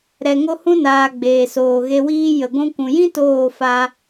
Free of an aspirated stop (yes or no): yes